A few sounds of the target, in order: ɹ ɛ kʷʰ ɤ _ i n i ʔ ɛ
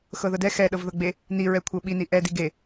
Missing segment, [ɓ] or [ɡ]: ɓ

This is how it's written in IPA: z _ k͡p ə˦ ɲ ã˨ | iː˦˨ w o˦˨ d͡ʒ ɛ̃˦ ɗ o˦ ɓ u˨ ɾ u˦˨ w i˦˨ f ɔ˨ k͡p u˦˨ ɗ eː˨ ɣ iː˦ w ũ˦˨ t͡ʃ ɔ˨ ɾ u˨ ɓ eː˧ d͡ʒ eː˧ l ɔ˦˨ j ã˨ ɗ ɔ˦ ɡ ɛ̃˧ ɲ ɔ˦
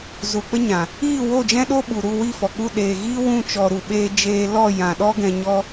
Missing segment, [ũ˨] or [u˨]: u˨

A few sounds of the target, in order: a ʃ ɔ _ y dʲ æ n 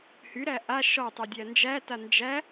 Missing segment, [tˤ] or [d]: tˤ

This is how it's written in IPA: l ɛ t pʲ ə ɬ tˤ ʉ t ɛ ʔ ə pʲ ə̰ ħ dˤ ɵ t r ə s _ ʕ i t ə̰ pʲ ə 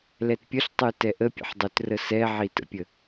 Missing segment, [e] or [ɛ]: ɛ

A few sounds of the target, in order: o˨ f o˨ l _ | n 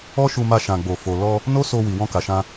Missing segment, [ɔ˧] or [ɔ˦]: ɔ˧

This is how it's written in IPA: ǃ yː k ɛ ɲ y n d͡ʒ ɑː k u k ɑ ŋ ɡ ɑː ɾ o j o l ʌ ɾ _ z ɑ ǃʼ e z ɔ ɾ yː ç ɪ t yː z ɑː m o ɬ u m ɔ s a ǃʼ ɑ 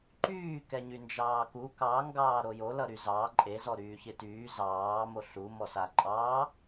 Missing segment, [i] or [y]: y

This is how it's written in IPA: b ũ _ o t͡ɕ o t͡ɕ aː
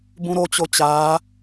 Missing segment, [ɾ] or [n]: ɾ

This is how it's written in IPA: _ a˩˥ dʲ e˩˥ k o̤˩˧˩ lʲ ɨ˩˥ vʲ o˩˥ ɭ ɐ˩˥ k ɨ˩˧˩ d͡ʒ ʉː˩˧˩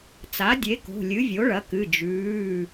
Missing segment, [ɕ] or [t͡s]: t͡s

